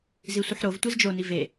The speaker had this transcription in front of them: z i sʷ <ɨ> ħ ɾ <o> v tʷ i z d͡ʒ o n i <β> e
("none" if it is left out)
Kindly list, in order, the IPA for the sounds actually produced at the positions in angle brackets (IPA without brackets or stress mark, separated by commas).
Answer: ɨ, o, v